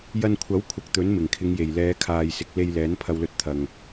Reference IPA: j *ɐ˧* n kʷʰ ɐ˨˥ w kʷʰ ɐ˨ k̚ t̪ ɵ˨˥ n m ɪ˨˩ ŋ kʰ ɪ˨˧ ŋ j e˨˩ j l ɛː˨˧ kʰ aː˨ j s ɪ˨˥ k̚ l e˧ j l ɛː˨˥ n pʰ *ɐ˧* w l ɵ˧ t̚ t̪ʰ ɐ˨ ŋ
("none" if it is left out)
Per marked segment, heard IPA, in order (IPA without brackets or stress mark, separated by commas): ɐ˧, ɐ˧